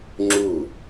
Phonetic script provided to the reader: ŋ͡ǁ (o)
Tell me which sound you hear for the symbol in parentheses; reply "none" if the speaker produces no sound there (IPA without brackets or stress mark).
u